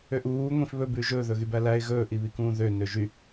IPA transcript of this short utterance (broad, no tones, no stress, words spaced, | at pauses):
øʔuː ŋʷĩfβɵ bʉːʒɵː ðɵɣybælæɪ̯ ɣɵː ʔiβikũːðø nøʒy